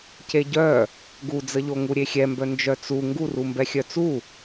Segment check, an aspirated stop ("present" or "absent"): absent